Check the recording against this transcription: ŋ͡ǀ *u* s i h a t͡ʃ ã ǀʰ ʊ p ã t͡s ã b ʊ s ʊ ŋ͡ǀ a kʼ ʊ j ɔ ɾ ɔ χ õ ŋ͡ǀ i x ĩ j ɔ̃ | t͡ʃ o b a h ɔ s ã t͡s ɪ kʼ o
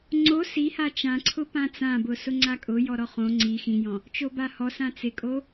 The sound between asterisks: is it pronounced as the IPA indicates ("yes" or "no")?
no